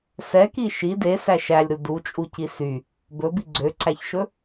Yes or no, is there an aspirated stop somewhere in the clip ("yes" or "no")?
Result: no